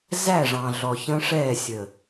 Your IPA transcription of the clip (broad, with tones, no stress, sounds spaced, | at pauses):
z æ˦˨ ʐ ɑ̃˨ ɮ ɔ˨ ç ə̃˦ ʂ ɛː˦˨ sʲ əː˨